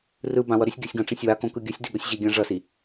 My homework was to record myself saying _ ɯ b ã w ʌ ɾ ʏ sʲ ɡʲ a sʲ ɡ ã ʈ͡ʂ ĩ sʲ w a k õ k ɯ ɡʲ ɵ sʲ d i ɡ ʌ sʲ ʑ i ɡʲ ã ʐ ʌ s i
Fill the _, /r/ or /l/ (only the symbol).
r